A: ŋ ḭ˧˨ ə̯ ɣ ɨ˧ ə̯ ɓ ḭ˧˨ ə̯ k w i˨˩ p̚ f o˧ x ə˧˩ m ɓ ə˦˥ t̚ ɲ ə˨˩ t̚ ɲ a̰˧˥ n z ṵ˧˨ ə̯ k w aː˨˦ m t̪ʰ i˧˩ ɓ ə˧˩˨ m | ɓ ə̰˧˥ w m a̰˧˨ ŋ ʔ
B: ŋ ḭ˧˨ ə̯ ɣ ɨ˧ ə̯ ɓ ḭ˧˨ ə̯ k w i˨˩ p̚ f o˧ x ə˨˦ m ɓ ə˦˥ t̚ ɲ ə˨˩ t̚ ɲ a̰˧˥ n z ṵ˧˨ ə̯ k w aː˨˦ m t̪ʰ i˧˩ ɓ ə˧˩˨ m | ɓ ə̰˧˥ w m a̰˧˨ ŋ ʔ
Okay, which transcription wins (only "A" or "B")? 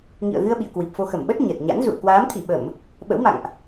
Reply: A